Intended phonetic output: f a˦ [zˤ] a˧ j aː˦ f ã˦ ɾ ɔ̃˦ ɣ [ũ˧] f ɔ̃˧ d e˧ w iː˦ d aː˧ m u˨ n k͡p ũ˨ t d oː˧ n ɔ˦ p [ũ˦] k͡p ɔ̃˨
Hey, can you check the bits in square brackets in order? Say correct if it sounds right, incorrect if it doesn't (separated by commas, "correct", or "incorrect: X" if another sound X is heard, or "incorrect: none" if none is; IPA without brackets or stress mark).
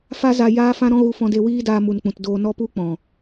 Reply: incorrect: z, incorrect: u˧, incorrect: u˦